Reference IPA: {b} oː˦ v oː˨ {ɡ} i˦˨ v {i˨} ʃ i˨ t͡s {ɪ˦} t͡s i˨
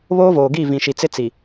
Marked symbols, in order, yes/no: no, yes, no, yes

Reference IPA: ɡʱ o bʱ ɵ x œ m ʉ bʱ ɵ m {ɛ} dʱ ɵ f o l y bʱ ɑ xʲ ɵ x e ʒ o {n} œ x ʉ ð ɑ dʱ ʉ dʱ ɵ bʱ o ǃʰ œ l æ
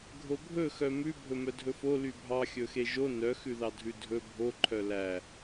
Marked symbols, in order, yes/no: no, yes

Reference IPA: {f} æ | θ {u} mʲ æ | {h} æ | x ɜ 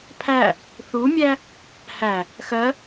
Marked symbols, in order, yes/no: no, yes, yes

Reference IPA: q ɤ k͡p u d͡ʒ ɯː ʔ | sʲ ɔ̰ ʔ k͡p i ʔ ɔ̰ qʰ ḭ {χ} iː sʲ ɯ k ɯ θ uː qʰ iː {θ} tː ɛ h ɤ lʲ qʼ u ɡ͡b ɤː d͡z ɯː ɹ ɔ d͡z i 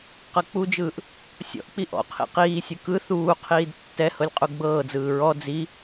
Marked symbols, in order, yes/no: no, no

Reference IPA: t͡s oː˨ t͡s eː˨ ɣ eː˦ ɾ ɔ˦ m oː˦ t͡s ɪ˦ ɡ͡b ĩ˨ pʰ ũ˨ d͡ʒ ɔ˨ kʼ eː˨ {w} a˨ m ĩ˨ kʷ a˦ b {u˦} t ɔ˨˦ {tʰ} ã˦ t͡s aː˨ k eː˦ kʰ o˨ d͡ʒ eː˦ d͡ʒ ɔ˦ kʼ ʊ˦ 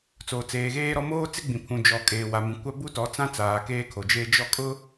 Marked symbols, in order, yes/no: yes, yes, no

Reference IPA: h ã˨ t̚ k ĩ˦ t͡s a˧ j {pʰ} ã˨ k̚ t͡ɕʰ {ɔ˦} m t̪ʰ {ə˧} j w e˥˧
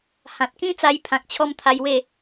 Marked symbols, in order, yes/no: yes, yes, no

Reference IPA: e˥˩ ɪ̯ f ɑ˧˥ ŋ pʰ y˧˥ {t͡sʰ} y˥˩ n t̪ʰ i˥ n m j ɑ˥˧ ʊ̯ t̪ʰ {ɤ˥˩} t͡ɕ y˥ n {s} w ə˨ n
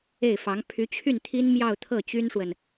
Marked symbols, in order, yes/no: no, yes, no

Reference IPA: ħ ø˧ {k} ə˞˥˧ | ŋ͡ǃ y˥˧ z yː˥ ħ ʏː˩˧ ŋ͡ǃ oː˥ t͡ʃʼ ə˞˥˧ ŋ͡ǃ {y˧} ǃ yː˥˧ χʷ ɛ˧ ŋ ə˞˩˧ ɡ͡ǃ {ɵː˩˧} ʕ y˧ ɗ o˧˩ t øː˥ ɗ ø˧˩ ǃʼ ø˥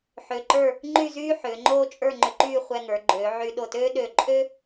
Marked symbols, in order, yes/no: no, no, no

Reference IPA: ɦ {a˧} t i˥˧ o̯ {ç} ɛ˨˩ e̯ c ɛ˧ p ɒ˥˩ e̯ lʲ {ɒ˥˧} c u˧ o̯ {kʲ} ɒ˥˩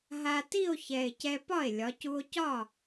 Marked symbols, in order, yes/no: yes, yes, no, no

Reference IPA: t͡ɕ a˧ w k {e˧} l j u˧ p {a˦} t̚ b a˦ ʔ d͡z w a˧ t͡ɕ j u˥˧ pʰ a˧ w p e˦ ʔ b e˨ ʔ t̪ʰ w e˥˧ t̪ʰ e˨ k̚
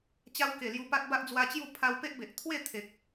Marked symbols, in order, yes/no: no, yes

